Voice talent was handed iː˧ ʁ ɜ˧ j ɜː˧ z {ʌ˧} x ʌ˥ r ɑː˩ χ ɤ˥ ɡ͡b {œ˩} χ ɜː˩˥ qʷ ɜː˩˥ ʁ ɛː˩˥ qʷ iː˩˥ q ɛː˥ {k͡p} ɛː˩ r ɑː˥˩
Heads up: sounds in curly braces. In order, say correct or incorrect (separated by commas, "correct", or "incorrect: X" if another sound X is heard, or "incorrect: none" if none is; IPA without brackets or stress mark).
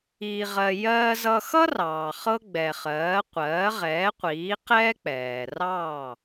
correct, incorrect: ɛ˩, correct